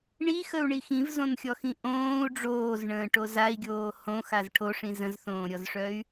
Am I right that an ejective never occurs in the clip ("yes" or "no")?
yes